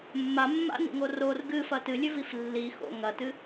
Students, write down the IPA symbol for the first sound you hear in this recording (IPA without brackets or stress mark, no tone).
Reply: mː